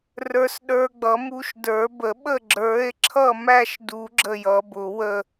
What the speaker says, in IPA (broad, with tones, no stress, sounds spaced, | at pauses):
r ə˞˦˥ s ɗ ə˞˦˥ ɡ͡b ʌ˨˥ m u˦˥ ʃ d ə˞˨˩˦ b ə˨˩˦ ɓ ə˥˨ ɡ͡ǁ ə˞˨˥ e̯ ǁʰ ʌ˥˨ m æ˥˨ ʃ d u˨˩˦ ɡ͡ǁ ə˥˨ j ʌ˨˩˦ b ʊ˨˩˦ w ə˥˨